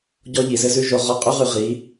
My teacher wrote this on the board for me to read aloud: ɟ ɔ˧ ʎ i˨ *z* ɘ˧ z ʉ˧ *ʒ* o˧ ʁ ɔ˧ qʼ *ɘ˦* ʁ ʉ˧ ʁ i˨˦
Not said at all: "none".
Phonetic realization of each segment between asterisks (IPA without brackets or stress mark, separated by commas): z, ʒ, ʉ˦